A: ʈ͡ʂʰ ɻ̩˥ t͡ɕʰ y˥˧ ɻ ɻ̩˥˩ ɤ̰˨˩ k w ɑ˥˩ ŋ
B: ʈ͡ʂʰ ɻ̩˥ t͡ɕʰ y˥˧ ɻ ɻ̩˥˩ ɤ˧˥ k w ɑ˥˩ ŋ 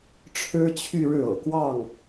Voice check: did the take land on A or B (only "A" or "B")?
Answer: A